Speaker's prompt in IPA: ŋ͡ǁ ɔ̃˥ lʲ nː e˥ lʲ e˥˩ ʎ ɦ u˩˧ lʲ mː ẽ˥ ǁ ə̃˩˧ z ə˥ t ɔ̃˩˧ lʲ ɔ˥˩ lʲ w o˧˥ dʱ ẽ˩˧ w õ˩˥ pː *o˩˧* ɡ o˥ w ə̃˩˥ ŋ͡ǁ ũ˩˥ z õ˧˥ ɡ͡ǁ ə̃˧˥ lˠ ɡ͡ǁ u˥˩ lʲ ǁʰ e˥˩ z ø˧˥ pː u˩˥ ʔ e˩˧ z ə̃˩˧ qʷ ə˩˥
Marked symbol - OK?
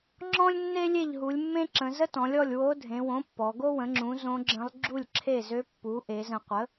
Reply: no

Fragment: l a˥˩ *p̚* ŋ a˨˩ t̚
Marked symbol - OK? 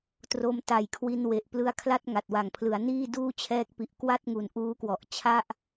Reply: no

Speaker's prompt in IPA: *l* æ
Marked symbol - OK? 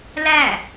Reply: yes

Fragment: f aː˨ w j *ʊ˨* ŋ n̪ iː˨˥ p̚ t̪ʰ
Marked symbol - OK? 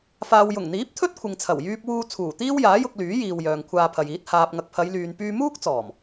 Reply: no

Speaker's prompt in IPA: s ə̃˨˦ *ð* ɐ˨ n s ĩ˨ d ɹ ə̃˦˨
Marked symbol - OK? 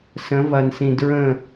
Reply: no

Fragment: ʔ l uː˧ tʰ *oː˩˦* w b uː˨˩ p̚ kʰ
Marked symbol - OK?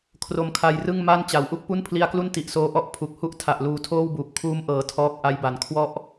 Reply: no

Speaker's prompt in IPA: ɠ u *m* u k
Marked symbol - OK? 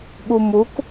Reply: yes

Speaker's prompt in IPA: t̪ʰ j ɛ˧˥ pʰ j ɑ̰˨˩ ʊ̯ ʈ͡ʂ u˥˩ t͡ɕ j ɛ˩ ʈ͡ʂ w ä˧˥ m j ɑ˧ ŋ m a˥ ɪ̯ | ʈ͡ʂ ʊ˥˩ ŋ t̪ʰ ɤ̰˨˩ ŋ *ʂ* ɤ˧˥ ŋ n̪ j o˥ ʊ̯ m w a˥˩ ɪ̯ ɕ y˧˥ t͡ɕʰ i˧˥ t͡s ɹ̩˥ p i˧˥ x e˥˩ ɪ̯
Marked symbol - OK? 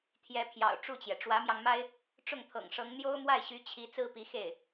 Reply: yes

